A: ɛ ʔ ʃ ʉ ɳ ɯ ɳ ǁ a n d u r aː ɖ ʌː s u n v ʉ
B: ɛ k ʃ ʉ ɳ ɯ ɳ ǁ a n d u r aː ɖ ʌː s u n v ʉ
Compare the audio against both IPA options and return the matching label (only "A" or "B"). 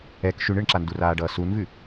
B